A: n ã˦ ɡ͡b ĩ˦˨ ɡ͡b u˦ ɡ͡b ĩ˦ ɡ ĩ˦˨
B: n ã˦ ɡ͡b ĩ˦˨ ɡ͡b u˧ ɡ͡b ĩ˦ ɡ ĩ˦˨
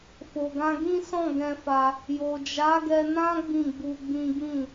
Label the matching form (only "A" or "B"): B